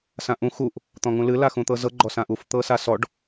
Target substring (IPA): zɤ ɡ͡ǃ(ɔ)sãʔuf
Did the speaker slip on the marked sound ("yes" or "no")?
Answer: no